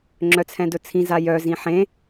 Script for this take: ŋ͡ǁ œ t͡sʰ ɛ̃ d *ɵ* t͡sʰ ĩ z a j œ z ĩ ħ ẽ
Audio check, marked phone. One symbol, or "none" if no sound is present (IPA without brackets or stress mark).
ɵ